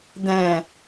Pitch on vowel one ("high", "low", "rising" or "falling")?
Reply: low